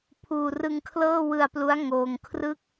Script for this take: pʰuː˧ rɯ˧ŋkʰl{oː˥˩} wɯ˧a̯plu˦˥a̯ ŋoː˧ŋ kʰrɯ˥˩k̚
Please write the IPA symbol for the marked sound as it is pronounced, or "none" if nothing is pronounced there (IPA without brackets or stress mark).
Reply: ɤː˥˩